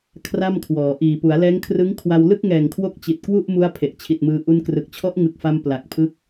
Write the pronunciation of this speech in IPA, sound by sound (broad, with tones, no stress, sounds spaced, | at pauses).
kʰ r a˥˩ m kʰ w ɔː˩˦ ʔ iː˨˩ p u˩˦ a̯ l ɛː˦˥ ŋ kʰ r ɯ˦˥ ŋ kʰ w a˧ w l ɯ˥˩ k̚ ŋ ɛː˨˩ ŋ kʰ w o˦˥ k̚ t͡ɕ i˨˩ t̚ k w u˥˩ ʔ m u˦˥ a̯ pʰ e˨˩ ʔ t͡ɕʰ i˨˩ t̚ m ɯː˧ ʔ u˧ n k r ɯ˨˩ k̚ t͡ɕʰ ɔ˦˥ ʔ ŋ ɯ˨˩ k̚ f a˧ m p l a˨˩ k̚ pʰ ɯ˦˥ k̚